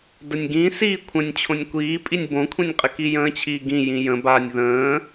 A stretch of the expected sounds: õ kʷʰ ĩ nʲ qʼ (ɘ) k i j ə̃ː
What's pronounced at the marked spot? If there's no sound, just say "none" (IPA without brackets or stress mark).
ɘ